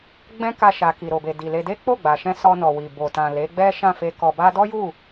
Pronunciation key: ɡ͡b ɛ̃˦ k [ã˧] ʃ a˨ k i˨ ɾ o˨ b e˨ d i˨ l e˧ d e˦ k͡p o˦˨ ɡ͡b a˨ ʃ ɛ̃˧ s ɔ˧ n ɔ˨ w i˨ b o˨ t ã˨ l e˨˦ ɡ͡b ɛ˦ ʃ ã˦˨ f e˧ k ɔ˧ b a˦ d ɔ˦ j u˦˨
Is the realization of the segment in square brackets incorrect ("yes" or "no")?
yes